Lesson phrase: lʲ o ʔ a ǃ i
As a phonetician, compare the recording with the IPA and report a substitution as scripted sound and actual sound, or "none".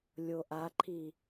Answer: ǃ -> ǃʰ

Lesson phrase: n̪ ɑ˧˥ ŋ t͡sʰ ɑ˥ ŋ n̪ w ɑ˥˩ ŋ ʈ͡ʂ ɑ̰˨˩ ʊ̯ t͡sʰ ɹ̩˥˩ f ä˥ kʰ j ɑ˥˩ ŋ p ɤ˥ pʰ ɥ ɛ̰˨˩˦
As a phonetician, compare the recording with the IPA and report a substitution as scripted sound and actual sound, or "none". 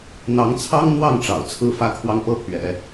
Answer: j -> w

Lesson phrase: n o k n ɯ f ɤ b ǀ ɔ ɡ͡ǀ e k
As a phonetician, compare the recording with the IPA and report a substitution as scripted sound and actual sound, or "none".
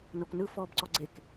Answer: ɤ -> ɔ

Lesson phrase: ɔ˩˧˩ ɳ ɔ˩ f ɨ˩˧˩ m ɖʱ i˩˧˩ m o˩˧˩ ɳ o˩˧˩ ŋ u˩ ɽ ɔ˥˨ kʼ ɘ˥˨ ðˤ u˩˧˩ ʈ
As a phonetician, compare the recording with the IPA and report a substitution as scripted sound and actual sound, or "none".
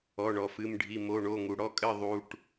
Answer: none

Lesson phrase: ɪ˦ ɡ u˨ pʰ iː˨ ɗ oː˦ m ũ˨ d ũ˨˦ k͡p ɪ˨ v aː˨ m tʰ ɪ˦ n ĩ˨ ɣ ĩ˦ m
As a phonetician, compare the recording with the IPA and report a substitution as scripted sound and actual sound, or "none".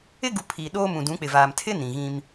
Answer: none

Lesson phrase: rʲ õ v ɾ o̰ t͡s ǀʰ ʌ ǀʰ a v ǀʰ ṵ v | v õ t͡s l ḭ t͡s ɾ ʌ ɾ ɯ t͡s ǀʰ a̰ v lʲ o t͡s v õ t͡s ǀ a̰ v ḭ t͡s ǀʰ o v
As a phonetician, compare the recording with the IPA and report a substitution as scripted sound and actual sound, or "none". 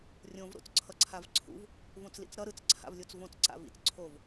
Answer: none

